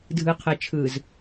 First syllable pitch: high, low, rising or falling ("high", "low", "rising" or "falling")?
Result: low